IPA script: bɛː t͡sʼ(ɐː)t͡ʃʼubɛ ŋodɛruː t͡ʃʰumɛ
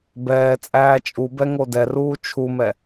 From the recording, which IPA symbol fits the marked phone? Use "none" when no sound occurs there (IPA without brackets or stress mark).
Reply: æː